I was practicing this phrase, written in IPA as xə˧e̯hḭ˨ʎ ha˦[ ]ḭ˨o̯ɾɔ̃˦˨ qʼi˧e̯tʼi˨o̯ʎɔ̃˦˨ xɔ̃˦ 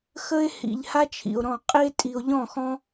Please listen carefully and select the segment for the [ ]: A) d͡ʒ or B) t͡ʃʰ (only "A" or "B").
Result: B